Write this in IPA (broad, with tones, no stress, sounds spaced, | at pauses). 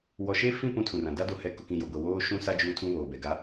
w ɔ˨ ʃ e˦ f ĩ˦˨ p ũ˦ tʰ ũ˨ r ã˨ d a˦ d o˨ h ɛ˨˦ k ʊ˨ k ĩ˨ j o˨ ɡʷ ɛ˨ w oː˦ ʃ ũ˦ s a˦ d͡ʒ uː˦ tʰ ũ˦ β oː˨ b ɛ˨ ɡ a˨˦